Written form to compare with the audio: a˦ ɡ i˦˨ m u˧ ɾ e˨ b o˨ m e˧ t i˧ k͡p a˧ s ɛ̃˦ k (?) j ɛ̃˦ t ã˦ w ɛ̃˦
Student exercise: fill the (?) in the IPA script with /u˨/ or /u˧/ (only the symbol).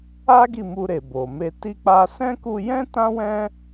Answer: u˧